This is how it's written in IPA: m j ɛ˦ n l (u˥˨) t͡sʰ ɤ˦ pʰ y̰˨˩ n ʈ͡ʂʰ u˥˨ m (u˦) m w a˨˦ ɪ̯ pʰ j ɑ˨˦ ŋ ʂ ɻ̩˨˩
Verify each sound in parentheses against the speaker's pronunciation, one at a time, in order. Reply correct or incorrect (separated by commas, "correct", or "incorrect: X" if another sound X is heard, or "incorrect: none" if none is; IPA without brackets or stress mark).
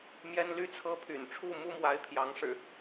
incorrect: y˥˨, correct